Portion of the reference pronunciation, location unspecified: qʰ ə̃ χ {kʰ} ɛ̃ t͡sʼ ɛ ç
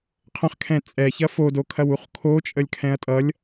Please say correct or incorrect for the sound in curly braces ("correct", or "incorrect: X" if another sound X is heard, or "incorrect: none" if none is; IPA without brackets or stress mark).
correct